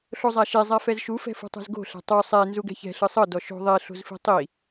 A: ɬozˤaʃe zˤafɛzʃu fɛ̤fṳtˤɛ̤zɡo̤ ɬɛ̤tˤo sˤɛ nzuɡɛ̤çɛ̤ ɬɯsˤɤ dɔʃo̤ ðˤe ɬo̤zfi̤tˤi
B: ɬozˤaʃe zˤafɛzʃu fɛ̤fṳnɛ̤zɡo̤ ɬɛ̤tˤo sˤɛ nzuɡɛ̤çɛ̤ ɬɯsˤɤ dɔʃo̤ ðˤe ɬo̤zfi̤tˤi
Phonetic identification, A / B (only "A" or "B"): A